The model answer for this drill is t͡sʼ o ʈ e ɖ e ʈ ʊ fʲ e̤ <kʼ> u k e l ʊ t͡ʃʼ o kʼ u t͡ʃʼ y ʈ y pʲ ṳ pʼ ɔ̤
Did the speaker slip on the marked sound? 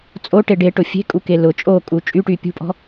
no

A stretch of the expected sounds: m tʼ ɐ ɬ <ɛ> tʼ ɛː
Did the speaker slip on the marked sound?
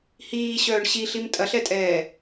no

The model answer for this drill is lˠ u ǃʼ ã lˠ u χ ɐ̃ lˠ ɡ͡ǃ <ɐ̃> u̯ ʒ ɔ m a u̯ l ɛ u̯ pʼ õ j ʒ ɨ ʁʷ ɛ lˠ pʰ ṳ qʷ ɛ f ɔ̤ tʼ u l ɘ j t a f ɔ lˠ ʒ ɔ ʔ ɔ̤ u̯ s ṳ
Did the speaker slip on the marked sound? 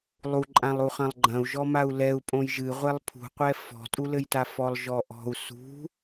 no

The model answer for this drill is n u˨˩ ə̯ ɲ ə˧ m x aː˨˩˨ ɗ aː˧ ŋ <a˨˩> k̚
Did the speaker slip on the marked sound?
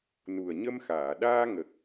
yes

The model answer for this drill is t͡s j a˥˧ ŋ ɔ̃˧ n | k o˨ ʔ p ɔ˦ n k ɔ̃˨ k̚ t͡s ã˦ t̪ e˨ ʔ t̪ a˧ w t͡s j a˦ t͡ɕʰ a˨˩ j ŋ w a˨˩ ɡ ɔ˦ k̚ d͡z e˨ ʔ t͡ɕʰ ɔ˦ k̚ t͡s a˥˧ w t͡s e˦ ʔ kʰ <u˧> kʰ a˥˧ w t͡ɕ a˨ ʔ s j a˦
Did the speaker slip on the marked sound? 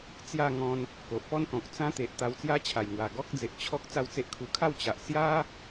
no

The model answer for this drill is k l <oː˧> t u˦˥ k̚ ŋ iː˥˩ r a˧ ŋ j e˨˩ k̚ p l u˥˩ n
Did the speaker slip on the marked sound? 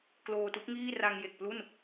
no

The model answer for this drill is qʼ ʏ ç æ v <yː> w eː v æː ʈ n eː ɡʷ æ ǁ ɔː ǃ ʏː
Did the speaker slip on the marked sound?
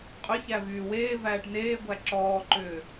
no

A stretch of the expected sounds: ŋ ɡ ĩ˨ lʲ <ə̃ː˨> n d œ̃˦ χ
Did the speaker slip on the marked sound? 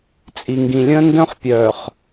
yes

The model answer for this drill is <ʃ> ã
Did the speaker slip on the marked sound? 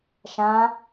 no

